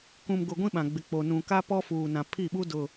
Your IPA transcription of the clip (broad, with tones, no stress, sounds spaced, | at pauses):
k ũ˨ m ɡ ʊ˨ ɡʷ ĩ˦ ɓ ã˨ ɡ͡b ɪ˨ k͡p o˨ n ũ˨ k a˦ p ɔ˦ f uː˨ n ã˨ pʰ i˦˨ ɓ u˦ d ʊ˨